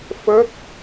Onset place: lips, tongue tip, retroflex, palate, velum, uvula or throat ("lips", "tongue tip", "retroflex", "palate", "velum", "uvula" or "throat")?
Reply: lips